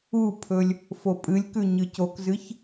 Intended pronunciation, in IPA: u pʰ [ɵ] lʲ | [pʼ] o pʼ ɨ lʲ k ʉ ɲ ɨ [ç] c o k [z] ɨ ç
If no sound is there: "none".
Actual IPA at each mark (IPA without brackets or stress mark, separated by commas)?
ɵ, f, none, z